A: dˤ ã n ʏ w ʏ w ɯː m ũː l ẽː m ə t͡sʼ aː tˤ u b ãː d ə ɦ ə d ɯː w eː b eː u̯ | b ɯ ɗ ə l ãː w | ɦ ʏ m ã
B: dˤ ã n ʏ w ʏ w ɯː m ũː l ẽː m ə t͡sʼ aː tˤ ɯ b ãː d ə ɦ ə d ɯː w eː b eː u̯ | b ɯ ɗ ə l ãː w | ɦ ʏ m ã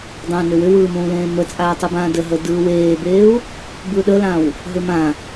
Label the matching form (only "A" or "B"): B